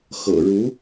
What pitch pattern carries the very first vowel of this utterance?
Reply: low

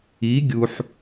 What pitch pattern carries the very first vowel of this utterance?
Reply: rising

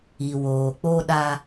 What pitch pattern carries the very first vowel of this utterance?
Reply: low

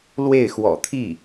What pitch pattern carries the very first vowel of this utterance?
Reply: falling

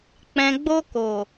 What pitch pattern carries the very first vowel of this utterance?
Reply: low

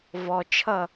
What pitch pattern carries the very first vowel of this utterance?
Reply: low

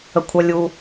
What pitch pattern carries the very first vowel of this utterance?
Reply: high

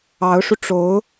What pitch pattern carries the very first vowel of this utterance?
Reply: rising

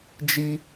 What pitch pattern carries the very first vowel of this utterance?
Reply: high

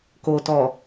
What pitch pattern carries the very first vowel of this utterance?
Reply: low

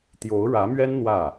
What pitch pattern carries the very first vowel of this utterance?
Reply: rising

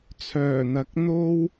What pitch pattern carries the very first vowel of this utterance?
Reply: low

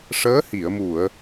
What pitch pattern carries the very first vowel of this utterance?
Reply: rising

